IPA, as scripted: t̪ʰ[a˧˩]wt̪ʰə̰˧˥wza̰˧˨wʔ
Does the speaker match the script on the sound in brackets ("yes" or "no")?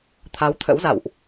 no